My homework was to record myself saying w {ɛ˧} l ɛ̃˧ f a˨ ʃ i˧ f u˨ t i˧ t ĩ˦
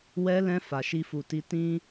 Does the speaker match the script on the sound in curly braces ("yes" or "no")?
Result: yes